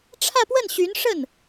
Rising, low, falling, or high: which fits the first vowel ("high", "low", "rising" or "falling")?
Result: falling